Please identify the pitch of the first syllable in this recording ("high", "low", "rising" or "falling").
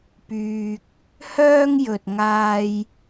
low